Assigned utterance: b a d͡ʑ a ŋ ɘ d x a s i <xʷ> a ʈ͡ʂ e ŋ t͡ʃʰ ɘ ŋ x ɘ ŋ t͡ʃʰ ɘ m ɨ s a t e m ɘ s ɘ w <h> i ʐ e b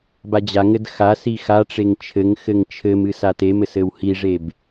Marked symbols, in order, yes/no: no, yes

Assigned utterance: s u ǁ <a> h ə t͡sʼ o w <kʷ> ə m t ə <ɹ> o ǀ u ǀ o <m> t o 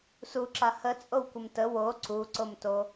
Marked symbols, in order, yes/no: yes, yes, no, yes

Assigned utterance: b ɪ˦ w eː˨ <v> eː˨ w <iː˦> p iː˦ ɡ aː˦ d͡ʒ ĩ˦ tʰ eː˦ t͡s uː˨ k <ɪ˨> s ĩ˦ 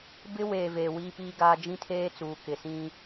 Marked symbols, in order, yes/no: yes, yes, yes

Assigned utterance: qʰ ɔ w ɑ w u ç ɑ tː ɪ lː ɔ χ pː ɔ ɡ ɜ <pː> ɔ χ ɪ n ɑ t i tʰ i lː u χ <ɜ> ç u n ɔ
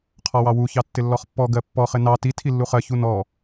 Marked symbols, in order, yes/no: yes, yes

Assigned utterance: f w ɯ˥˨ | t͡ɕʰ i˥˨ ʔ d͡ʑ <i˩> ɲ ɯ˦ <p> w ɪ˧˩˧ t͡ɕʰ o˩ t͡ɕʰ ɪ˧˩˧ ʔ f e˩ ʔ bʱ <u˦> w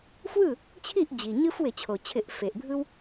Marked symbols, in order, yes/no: yes, no, no

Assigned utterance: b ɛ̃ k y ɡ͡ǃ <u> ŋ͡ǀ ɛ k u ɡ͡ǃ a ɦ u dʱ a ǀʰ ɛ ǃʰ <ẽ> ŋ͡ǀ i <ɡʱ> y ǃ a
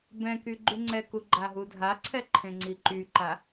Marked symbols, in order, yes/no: no, yes, no

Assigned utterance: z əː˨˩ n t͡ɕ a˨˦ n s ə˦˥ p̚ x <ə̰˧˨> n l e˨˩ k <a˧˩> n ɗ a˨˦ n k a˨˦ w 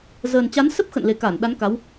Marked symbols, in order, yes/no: yes, yes

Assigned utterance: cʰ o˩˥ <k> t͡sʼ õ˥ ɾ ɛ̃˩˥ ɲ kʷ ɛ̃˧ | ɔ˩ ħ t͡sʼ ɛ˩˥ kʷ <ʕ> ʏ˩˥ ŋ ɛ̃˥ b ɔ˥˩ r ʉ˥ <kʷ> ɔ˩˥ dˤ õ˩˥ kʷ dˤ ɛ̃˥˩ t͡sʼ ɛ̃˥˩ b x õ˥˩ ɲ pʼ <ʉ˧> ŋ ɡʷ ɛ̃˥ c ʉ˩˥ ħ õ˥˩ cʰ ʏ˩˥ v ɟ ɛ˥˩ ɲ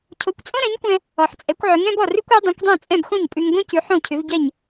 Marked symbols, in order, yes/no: no, yes, yes, yes

